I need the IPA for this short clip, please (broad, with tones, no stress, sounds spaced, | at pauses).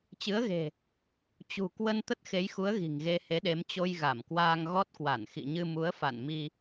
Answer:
t͡ɕ ɨ˨˦ ə̯ ɣ e̤˨˩ | t͡ɕ ṳ˨˩ k w ə˧ n t̪ ə˦˥ t̚ x e˨˦ j x u˨˦ ə̯ ɣ i̤˨˩ ŋ ɣ e˧ h e˨˦ ɗ e˨˦ m t͡ɕ o˧ j ɣ a˧˩ m k w aː˧ ŋ ɣ ɔ˦˥ t̚ k w a˧˩ n x ḭ˧˨ ɲ ɨ˧ m u˨˦ ə̯ f a̰˧˨ n m i˧